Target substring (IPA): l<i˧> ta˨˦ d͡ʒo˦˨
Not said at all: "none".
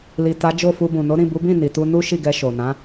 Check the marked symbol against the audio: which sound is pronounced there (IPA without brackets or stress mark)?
i˨